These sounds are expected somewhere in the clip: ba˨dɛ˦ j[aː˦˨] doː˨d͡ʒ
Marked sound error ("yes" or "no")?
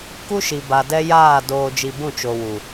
no